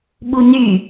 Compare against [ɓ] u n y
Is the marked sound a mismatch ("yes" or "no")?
no